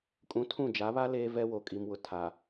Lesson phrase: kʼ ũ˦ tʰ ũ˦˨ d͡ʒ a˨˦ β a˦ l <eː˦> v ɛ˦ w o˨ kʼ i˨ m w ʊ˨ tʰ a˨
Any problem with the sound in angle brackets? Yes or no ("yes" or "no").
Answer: no